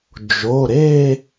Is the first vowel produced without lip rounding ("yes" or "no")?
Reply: no